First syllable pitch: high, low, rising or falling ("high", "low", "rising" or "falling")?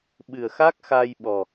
low